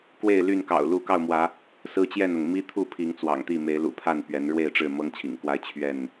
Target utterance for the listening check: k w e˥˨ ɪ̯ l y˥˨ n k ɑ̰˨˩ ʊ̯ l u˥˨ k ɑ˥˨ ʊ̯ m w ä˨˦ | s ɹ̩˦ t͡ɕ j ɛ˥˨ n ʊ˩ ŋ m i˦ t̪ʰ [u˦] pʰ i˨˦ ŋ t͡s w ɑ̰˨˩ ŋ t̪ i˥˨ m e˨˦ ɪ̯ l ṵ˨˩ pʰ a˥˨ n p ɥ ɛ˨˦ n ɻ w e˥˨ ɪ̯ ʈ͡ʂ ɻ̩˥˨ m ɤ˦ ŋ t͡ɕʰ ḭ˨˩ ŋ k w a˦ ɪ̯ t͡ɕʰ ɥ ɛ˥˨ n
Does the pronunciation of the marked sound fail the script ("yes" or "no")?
yes